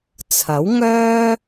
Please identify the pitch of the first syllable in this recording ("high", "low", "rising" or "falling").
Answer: rising